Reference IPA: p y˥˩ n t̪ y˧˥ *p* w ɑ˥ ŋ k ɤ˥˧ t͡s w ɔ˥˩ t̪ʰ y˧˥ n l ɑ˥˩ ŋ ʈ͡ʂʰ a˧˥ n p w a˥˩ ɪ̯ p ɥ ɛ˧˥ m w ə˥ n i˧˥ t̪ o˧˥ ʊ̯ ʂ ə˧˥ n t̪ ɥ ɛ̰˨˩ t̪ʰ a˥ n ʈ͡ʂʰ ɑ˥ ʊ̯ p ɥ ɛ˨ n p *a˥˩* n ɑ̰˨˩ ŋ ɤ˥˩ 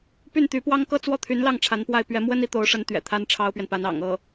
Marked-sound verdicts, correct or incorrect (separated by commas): correct, incorrect